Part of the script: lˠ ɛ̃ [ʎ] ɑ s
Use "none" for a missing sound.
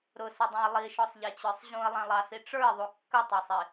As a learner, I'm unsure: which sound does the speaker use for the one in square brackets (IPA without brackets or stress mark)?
lˠ